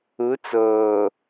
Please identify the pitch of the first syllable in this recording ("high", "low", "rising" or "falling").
rising